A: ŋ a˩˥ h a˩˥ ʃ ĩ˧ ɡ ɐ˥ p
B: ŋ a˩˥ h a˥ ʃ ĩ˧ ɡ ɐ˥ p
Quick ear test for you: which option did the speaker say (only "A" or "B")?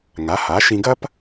A